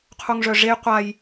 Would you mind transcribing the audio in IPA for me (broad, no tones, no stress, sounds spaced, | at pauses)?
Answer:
qʰ u ŋ ʐ œ ʐ e j qʷ a j